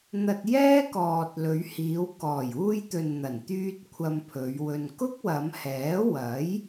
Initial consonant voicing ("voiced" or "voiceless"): voiced